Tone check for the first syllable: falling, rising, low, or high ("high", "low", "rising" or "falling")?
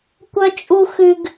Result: low